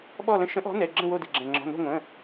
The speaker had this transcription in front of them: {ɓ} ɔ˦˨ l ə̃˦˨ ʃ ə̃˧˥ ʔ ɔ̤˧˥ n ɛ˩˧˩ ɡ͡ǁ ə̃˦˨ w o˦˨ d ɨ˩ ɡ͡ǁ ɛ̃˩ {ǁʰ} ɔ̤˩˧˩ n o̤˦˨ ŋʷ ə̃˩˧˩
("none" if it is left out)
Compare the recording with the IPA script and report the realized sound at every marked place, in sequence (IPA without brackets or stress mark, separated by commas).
ɓ, ŋ͡ǁ